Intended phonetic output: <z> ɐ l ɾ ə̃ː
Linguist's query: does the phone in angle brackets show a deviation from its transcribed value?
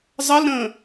yes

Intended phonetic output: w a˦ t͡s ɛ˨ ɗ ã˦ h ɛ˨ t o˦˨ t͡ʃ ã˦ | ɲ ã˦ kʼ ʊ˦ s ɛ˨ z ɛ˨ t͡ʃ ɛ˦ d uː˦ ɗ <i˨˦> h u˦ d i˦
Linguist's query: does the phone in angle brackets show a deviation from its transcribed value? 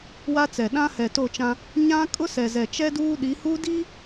no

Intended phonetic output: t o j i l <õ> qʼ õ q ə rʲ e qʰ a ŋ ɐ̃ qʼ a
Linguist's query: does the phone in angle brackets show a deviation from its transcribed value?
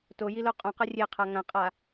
yes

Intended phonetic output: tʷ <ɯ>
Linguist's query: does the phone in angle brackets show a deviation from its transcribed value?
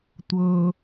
yes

